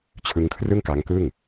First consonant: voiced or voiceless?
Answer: voiceless